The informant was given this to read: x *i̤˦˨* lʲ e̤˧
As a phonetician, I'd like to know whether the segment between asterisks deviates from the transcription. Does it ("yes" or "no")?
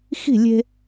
no